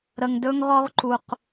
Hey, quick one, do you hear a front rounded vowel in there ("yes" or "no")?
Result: no